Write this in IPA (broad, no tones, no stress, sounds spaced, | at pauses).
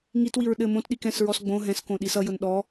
ŋ i t w i ɹ ɗ ɘ m õ t ɗ i k ɛ̃ s ɹ ɔ s ɡ͡b õ ɦ ɛ̃ s k õ ɗ i s ʌ j ʊ n ɗ ɔ